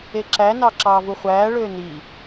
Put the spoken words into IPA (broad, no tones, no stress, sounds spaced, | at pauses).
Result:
e ǁ æ n ɑ ǁ ɑː v u χʷ æː ɭ øː n i